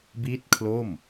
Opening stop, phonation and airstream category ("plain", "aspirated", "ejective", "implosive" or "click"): plain